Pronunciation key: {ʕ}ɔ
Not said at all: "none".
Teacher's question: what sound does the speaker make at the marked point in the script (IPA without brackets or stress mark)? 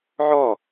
ʕ